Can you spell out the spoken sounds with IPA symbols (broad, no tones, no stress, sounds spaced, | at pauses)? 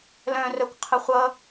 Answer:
l œ̃ r œ kʷ qʰ ə χʷ ʌ